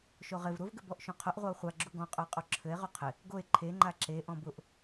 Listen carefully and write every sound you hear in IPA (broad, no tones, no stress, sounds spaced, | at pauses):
ʃ o ʁ ɪ v ɾ ʊ v ɡ ɘ b ɔ ʔ ʃ ũ qʰ ʊ ʔ ʁʷ a o̯ χʷ a ɡ͡ǁ u ɡ ɔ̃ qʼ ʊ e̯ qʼ o ǁʰ ɘ e̯ ʁ u qʰ ɪ | ɡ o e̯ ǃʰ e ŋ͡ǃ a ǁ e ʔ ɔ̃ b ʊ ʔ